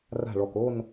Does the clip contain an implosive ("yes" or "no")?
no